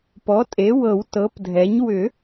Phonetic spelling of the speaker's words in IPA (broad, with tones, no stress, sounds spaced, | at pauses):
p ɔ˩˥ tʼ e˩˥ w ɤ˨˩˦ w t ɤ˩˥ p dʱ ɛ˩˥ ɲ w ʏ˨˩˦